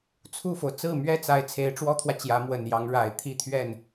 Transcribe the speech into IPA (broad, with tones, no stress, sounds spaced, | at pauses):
t͡sʰ u˥˩ f o˩ ʊ̯ t͡s ɹ̩˥˩ m ɥ ɛ˥ t͡s a˧˥ ɪ̯ t͡sʰ e˧˥ ɪ̯ ʈ͡ʂ w ɔ˥ t̪ʰ w ä˨ t͡ɕ j ä˧˥ m w ə˨˩ n j ɑ˧˥ ŋ ɻ a˨˩ ɪ̯ t̪ʰ i˥˧ t̪ʰ ɥ ɛ˥˩ n